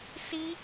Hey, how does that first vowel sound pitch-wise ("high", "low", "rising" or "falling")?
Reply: high